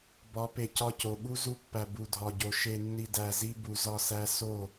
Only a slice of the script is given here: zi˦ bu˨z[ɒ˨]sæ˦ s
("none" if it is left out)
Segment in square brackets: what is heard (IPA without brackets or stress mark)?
ɒ˦˨